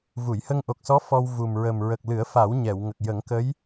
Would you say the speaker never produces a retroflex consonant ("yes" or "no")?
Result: yes